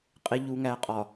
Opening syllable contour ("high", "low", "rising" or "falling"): low